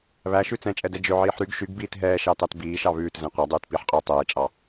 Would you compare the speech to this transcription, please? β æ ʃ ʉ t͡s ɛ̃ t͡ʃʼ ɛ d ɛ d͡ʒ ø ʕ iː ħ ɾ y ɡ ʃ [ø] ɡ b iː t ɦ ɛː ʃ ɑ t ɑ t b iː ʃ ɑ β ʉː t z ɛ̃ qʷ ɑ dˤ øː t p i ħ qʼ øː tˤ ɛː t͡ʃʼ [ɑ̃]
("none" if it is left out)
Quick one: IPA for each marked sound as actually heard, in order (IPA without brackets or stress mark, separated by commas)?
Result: y, ɑ